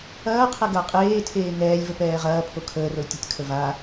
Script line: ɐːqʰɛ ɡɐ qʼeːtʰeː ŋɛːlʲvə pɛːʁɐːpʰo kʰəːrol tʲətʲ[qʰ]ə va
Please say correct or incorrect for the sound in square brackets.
incorrect